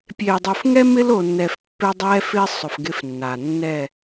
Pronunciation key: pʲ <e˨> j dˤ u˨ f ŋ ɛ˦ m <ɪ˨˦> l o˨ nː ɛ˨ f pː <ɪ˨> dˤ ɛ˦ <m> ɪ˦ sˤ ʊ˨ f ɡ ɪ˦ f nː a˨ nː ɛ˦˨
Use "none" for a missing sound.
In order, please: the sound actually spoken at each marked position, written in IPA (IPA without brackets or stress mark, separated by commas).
e˨, ɪ˦, ɪ˦, f